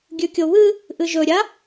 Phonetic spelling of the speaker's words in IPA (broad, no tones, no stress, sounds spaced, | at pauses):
ɡʲ ʉ kʲ o β ɨ | ʔ ɨ ʒ ɵ ɾʲ a